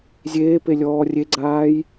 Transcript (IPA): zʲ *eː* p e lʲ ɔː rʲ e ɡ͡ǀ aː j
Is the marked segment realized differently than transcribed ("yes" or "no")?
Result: no